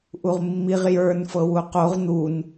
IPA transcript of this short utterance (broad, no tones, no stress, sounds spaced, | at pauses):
ʔ u ʁ mː i ʁ j ə˞ n f ɤ w u q o ʁ n̪ u n